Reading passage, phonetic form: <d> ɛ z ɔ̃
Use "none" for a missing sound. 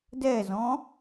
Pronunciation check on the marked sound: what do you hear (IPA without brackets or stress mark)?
d